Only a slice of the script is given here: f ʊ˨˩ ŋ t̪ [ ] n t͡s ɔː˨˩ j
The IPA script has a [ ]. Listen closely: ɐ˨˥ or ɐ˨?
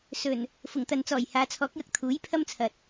ɐ˨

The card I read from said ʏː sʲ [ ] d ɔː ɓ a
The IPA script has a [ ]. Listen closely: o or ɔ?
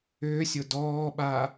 o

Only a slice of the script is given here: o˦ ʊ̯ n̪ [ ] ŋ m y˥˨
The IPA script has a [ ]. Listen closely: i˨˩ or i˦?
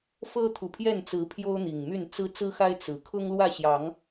i˨˩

